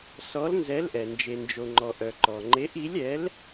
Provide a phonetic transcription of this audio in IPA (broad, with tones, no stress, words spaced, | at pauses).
sɔ˨˥lnzɛ˨˥lʔɛ˩ nd͡ʒe˩nd͡ʒo˩ŋ͡ǃɔ˩ ʔœ˩ǃɔ˩ ŋ͡ǃe˨˥ʔi˨˥lʲɛ˨˥l